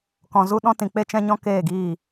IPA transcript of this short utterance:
k ɔ̃˧ z u˦ ɗ ɔ̃˦ t ĩ˧ k͡p e˦ t͡ʃ ɛ̃˦ ɲ ɔ̃˦ k eː˦˨ ɡ iː˦˨

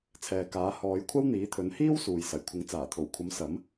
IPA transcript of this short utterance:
t͡sʰ ɛː˨ k aː˨˥ h ɔː˨˧ j kʷʰ ɐ˥ w n̪ iː˨˥ t̪ʰ ɵ˨˥ n h iː˥ w s uː˨ j s ɐ˨˩ j kʷʰ ɪ˨˥ ŋ t͡s aː˨˩ t̪ʰ o˨˩ w kʷʰ ɐ˨˥ m s ɐ˨˥ m

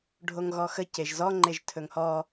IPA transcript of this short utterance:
ɖʱ o ŋ ɣ ɔ x ə c e ʒ z ɔ ŋ͡ǃ e ʒ tʰ ɵ ŋ h ɔ

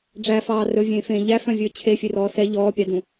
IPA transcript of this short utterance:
ɖ͡ʐ æ f ɑː r ɵ vʲ ẽː f ẽː ʎ æ f œ̃ vʲ ɵː t͡ɕʰ e fʲ ø r ɔː s ɛ ʎ ɔː pʲ ɑ d ũ

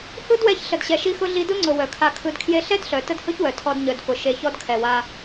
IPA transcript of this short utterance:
h ɯ˦ d w ɛ˧ ç ɬ ə˨ d ɕ ɛ˨ ʃ i˧ x ʊ˧ ɮ i˧ d ʊ˦ ŋ͡ǀ ʊ˨ w œ˨ kʰ a˧ kʰ ɯ˧ d kʰ j e˦ ɬ ɛ˦ d ɬ œ˨ t ə˦ d h ʊ˦ ç w œ˨ tʰ ɔ˧ d ɲ œ˨ d f ʊ˨ ʃ e˨ ç ɔ˧ d kʰ ɛ˨ w a˧

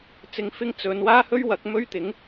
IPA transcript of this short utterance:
t͡s ɪ˧ ŋ f ɪ˥ ŋ t͡s ɵ˨˧ n w aː˥ h ɵ˥ ɥ w ɐ˨˥ k̚ m ɵ˥ ɥ t̪ ɪ˨˥ ŋ

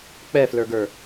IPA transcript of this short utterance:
k͡p ɛ f l ə˞ ɡ ə˞

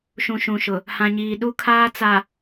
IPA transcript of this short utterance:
ʃ ũ˨ ʃ ũ˨ ʃ ʊ˨ | h ã˨ ɲ iː˨ ɗ u˦ kʰ aː˦ t͡s a˨

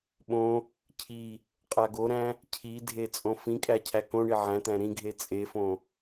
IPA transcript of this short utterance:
ɓ õ | cʰ i | qʼ a ɡ o ɾ æ̃ | cʰ i dʱ e t͡sʼ õ f ĩ kʼ æ cʰ æ k õ ɳ i ʕ æ̃ t̪ æ̃ ɾ ĩ ɡʱ e t͡sʼ e f õ

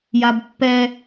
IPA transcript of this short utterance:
j a b pː ɛ

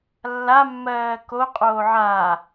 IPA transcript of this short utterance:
lː a mː ɜː k o qʼ oː ʕ a

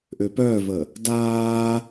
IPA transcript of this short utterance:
ʔ ø p œː v ə | d aː

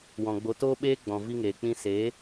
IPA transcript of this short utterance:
w ɔ̃˨ ɡ͡b o˨˦ t oː˦ ɓ eː˦ ɡ͡b ɔ̃˨ v i˧ ŋ eː˨ k͡p ĩ˧ s eː˨˦

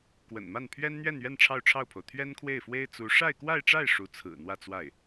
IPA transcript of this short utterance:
k w ə̰˨˩ n m a˥˩ n pʰ ɥ ɛ˥ n n̪ ɥ ɛ˥˧ n ɥ ɛ˥˧ n ʈ͡ʂʰ ɑ˥˧ ʊ̯ ʈ͡ʂʰ ɑ˥˩ ʊ̯ pʰ o˩ ʊ̯ t̪ʰ ɥ ɛ˥ n kʰ w e˥˩ ɪ̯ f w e˥ ɪ̯ t͡s u˧˥ ʂ a˥˧ ɪ̯ k w a˥˧ ɪ̯ ʈ͡ʂ a˥˩ ɪ̯ ʂ u˧˥ t͡sʰ ɹ̩˨˩ n̪ w ä˥˧ t͡s w a˥˩ ɪ̯

